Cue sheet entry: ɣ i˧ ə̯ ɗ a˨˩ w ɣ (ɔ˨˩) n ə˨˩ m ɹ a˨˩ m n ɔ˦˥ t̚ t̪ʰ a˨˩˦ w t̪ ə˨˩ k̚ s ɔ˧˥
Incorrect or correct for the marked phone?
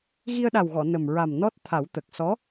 incorrect: ɔ˨˩˨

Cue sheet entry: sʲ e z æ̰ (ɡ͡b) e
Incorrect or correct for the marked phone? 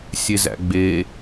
correct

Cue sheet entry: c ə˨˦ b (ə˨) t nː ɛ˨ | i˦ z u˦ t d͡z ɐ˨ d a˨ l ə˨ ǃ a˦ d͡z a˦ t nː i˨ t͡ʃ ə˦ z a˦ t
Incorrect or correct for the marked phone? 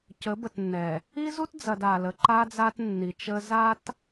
correct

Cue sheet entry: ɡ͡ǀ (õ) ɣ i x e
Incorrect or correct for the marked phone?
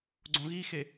correct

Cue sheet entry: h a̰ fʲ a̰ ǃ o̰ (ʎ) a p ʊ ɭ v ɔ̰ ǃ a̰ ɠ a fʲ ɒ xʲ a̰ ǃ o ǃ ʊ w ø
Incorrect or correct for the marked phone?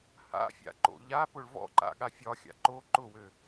correct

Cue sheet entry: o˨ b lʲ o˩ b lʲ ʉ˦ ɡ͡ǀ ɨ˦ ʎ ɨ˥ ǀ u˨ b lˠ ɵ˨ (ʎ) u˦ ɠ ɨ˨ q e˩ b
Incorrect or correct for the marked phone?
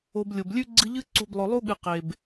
incorrect: lˠ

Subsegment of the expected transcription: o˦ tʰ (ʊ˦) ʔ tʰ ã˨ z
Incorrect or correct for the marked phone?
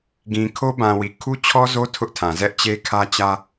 correct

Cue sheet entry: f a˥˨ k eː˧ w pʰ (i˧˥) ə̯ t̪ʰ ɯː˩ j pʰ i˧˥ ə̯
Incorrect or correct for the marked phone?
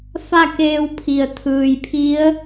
incorrect: i˩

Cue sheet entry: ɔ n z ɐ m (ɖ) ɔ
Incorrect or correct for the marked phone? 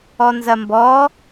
incorrect: b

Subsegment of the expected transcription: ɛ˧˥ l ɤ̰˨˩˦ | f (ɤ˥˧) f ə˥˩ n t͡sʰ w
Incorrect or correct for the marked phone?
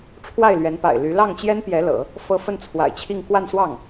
correct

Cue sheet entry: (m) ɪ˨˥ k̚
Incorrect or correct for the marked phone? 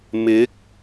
correct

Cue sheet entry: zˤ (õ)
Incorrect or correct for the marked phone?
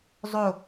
incorrect: o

